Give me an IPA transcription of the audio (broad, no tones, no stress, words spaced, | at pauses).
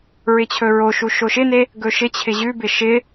ɹɪt͡ɕʰɵɹoʃu ʃoʃɪne | ɡɵʃɪt͡ɕʰɪ ʑʉbɪ ʃɪ